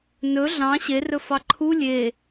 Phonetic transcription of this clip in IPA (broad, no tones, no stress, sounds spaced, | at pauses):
n ɵ ɮ ɑ̃ ɕ e r ɵ f ɑ ǃʰ u lʲ e